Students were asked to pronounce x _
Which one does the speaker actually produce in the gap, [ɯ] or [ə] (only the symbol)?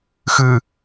ɯ